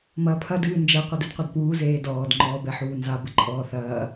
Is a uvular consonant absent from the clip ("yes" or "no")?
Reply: no